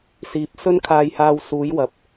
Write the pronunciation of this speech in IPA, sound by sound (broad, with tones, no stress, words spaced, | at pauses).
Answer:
siː˨˥p̚ sɵ˥nkʰaː˧jhaː˧wsuː˨˥j wɐ˨˥p̚